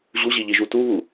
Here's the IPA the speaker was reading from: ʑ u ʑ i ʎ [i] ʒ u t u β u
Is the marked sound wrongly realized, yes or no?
no